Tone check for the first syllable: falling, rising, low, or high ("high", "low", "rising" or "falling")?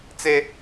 high